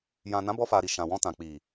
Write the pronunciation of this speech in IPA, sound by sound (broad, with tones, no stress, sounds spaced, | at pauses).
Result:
j ã˨ n ã˨˦ b ɔ˧ f a˨ ɾ i˨ ʃ ã˨ w ɔ̃˧ t ã˨ k͡p i˨